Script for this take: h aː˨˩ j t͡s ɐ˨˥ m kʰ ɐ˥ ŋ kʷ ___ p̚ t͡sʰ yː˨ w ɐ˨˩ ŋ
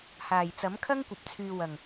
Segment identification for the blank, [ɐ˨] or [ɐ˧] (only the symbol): ɐ˨